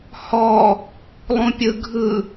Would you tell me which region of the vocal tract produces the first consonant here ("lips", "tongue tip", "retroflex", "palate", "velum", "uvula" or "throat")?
throat